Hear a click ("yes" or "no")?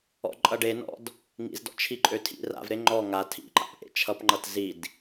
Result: yes